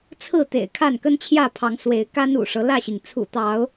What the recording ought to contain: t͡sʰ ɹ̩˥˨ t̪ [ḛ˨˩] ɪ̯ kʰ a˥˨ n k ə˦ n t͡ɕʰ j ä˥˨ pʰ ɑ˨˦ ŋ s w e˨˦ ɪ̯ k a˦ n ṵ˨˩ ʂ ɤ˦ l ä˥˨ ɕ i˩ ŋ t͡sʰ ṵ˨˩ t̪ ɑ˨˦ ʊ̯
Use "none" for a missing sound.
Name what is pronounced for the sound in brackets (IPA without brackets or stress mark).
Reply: ḛ˨˩